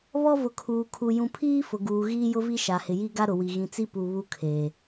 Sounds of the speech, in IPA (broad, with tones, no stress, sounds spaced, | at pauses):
β ɔ˦ v ʊ˨ kʰ uː˨ kʰ u˨ j ũ˨ pʰ iː˦ f ʊ˨ ɡ uː˨ ɣ iː˦ j ʊ˦ v i˦ ʃ a˨ h ɪ˨ j i˦ ɡ a˦ ɾ ʊ˨ w i˨ ɣ ĩ˨ t͡s i˦ p u˨ β u˦ kʰ eː˨